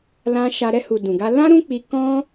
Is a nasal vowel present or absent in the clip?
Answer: present